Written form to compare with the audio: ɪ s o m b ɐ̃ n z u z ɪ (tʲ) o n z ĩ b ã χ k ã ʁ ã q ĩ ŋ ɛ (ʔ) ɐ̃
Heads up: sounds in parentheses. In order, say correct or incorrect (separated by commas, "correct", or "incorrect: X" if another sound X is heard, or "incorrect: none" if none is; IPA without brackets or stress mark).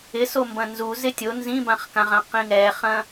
correct, incorrect: χ